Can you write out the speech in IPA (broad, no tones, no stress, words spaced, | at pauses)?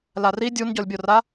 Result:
lari dʲunɟɔlʲbʲora